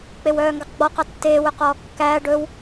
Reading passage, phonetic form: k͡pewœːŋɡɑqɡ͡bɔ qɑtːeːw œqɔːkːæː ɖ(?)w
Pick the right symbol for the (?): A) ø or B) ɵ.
B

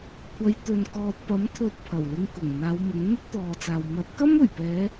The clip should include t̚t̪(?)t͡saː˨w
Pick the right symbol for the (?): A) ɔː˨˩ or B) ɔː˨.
B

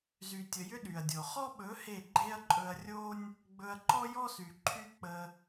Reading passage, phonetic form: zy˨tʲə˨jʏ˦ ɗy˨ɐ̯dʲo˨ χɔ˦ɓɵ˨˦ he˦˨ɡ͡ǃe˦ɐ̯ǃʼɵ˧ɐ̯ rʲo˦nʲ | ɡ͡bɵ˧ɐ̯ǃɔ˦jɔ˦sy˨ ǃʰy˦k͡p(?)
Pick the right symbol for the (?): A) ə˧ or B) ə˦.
A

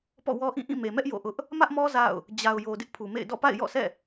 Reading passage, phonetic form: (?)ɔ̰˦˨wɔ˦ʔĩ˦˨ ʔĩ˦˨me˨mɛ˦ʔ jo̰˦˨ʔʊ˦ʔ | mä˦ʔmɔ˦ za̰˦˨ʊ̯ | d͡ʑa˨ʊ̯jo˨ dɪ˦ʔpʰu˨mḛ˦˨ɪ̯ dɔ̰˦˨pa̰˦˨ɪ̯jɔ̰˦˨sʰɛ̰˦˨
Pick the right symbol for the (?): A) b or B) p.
B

